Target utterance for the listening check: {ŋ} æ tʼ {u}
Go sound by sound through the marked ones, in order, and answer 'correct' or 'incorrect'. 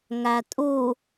correct, correct

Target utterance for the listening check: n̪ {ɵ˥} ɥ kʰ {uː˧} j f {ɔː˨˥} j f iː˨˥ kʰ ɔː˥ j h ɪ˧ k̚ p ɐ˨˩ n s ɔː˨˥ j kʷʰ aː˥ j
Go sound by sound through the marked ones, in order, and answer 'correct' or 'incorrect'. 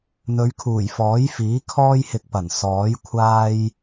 incorrect: ɵ˨˧, incorrect: uː˨˩, correct

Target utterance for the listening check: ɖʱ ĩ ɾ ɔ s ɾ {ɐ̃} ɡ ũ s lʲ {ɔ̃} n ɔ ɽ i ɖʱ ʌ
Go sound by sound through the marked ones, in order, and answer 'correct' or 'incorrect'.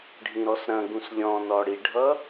correct, correct

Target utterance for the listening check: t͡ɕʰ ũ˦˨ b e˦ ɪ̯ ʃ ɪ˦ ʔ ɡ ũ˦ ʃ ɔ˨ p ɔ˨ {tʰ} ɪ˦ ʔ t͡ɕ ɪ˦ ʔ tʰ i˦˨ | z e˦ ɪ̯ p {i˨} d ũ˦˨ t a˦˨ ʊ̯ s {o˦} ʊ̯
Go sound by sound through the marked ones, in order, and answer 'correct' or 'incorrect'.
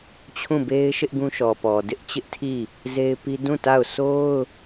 incorrect: d, incorrect: i˦, correct

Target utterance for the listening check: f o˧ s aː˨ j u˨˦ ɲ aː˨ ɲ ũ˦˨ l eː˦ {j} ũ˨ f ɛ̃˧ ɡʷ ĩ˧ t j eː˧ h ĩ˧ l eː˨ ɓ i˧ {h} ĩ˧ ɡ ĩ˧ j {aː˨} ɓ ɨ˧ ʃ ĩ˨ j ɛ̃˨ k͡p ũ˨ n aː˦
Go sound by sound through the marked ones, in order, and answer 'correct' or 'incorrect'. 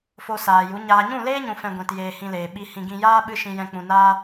incorrect: ɲ, correct, incorrect: aː˦

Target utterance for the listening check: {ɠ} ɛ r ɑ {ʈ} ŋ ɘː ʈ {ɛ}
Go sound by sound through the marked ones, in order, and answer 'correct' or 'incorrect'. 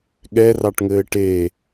correct, correct, incorrect: e

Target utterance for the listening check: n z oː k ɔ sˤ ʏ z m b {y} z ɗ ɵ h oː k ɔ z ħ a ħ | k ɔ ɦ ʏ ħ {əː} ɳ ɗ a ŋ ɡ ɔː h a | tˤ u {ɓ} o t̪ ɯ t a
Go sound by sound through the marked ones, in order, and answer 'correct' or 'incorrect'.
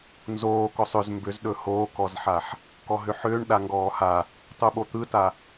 incorrect: ʏ, incorrect: ʏː, correct

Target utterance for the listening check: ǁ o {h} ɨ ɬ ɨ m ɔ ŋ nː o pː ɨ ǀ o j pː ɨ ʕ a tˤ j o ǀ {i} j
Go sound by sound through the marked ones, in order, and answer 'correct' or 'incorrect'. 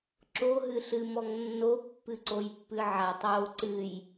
incorrect: ɦ, incorrect: ɨ

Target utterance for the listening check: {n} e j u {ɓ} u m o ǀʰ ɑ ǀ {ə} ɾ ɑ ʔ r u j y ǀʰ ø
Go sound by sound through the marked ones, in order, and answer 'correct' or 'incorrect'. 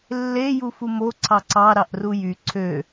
incorrect: lː, incorrect: f, incorrect: ɑ

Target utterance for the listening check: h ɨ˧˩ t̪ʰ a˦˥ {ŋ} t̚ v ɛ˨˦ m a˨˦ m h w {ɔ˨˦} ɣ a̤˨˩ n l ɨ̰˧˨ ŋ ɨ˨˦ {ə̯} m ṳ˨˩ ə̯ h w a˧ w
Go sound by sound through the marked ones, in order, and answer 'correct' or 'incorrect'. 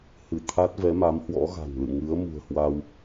incorrect: none, incorrect: ɔ̰˧˥, correct

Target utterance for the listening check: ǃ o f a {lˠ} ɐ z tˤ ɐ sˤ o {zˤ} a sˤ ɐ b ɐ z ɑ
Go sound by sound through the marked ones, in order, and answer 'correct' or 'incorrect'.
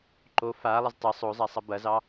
correct, correct

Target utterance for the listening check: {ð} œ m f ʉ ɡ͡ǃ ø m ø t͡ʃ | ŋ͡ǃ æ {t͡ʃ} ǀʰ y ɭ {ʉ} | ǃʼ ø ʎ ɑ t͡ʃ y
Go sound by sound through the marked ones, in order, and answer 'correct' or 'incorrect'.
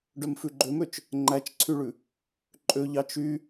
incorrect: ɖ, correct, correct

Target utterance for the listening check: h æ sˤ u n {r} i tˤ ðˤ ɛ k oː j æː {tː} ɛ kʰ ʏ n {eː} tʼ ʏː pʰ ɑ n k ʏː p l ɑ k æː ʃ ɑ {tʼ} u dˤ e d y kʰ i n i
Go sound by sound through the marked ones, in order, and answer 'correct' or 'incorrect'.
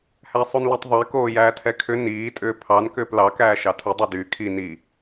incorrect: l, incorrect: tʰ, incorrect: iː, incorrect: tʰ

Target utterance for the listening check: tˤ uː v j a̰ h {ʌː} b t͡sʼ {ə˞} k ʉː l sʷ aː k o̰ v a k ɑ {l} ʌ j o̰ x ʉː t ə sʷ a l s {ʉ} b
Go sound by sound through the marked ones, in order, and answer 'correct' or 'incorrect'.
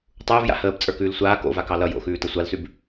incorrect: əː, correct, correct, correct

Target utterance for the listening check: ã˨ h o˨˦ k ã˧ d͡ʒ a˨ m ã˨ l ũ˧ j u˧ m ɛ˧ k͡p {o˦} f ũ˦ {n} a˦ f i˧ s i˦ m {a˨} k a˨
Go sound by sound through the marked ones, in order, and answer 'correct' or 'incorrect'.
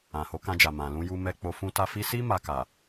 incorrect: o˧, incorrect: t, incorrect: a˧

